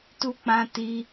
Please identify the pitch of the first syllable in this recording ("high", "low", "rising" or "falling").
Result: high